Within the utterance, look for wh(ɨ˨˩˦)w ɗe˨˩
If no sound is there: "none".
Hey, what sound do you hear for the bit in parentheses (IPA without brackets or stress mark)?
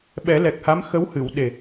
ɨ˨˩˨